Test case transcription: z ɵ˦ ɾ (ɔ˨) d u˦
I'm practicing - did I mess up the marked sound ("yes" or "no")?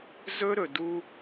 yes